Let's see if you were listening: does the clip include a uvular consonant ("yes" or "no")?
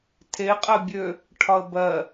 yes